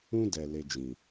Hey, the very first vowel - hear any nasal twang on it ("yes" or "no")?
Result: yes